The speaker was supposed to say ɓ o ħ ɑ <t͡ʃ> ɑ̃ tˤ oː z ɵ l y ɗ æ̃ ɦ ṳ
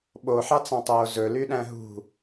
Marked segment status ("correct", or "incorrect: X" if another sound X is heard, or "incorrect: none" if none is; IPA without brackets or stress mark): incorrect: t͡s